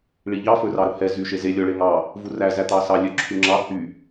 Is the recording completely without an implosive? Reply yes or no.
yes